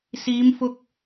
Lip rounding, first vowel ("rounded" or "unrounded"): unrounded